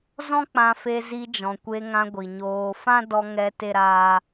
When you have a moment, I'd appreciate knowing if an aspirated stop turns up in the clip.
no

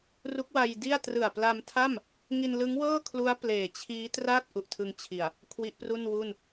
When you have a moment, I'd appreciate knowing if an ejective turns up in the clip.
no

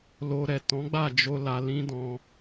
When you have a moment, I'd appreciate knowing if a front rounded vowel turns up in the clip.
no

